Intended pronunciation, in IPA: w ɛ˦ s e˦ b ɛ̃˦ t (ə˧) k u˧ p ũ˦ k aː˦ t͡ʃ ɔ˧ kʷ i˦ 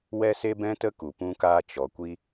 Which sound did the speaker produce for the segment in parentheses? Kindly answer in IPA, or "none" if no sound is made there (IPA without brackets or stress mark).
ə˦